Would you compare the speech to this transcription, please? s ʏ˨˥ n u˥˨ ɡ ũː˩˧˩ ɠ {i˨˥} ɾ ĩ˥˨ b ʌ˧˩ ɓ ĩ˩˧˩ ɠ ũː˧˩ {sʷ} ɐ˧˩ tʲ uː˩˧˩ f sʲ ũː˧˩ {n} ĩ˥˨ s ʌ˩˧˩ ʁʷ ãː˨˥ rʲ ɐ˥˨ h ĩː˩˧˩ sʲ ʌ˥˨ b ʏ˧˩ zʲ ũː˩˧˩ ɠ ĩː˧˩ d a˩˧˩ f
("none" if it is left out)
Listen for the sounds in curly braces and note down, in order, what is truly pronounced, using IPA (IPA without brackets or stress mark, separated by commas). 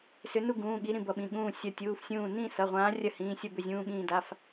i˨˥, sʲ, n